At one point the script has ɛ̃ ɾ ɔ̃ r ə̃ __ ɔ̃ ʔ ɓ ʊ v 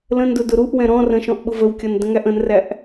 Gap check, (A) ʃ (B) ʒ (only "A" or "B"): A